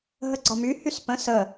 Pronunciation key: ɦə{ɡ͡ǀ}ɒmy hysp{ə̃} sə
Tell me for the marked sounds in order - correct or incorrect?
correct, correct

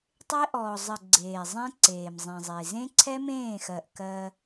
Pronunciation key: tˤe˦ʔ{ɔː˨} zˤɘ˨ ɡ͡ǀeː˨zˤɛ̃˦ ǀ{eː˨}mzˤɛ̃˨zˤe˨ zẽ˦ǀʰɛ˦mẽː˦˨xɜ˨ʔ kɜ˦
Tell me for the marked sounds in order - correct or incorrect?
correct, correct

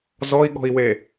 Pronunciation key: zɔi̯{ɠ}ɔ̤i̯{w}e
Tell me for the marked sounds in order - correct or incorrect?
correct, correct

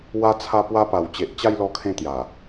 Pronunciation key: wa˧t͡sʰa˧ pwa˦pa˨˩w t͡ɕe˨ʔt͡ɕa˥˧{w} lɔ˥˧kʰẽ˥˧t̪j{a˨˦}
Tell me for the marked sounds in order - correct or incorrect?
incorrect, incorrect

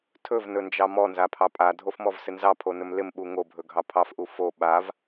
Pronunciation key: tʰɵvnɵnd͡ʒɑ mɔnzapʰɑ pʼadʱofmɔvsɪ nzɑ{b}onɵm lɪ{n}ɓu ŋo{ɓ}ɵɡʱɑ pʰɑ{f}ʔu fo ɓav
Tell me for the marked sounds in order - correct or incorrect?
incorrect, incorrect, incorrect, correct

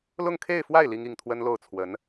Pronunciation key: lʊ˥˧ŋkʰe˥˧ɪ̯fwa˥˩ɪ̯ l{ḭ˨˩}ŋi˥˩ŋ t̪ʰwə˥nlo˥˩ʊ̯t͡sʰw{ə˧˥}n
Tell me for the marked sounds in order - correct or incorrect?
incorrect, correct

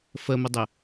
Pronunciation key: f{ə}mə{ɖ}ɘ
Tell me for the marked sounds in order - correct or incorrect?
correct, incorrect

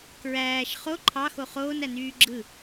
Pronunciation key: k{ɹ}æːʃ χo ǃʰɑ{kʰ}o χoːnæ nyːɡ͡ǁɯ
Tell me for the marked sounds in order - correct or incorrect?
correct, incorrect

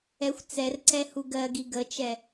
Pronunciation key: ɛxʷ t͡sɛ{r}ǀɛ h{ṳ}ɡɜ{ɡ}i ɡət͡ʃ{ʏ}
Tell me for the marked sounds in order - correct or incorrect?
correct, incorrect, correct, incorrect

